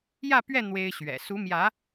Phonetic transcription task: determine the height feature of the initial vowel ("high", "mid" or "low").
low